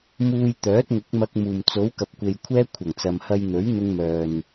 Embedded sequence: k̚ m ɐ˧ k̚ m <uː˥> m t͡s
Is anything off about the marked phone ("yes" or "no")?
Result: yes